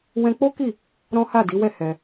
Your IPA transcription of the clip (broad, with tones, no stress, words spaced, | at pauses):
wɛ̃˦ k͡po˦ki˦˨ | ɾɔ̃˦ha˦˨di˨˦wɛ˦˨ hɛ˧